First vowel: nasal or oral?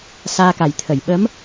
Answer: oral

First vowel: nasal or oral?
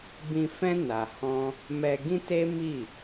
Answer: nasal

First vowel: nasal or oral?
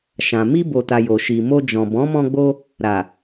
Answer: nasal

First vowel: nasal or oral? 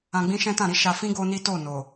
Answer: nasal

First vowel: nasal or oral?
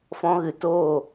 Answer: nasal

